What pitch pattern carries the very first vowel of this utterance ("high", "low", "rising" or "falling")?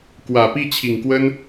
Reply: low